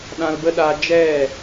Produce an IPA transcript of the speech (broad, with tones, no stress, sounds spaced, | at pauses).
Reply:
ɗ ã˧ l b ə˦ ɗ aː˧ d͡ʒ ɛ˦˨